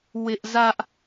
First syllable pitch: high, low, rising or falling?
high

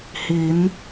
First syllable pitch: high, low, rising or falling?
rising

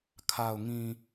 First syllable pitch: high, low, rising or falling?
low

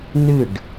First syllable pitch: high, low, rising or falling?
falling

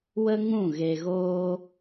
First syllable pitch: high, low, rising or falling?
high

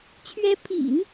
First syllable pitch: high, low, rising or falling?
rising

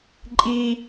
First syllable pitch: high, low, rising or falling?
high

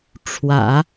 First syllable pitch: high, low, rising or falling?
low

